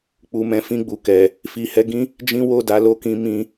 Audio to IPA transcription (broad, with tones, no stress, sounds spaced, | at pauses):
k͡p u˨ m ɛ̃˨˦ f ĩ˧ ɡ͡b u˨ k ɛ˨ | f i˨ h ɛ˧ ɡ ĩ˦ | d͡ʒ ĩ˦ w o˦˨ d a˨˦ l o˦ k ĩ˧ m ĩ˧